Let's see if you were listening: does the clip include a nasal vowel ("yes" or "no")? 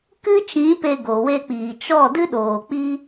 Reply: yes